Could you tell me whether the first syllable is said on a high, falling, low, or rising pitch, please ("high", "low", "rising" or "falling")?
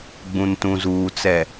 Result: low